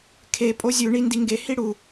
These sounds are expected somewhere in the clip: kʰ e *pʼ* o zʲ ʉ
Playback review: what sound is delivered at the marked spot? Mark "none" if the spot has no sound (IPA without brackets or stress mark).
pʼ